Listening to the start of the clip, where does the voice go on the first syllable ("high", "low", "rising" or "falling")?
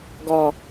low